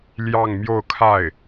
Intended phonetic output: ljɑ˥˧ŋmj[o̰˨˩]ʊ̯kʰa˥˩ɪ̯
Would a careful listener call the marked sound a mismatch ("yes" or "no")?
yes